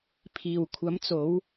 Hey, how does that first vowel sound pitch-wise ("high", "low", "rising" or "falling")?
low